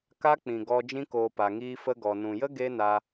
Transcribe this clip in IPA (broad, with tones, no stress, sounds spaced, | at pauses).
k a˦ k͡p ĩ˨ ɡ ɔ˧ d͡ʒ ĩ˧ k oː˨ p a˨ ŋ iː˧ f ə˧ ɡ ɔ˨ n ũ˨ j ə˦ ɡ e˦ n a˧